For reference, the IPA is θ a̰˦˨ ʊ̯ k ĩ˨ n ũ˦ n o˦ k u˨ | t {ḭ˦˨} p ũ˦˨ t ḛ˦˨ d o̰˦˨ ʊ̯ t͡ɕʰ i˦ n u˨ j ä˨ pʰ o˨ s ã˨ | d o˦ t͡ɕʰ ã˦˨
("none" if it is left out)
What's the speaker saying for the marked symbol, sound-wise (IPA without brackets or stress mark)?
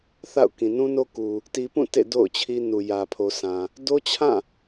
i˨